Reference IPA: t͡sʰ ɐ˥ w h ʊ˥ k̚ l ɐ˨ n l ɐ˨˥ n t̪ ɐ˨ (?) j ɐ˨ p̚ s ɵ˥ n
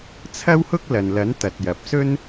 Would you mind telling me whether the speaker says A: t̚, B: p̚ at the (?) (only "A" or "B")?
A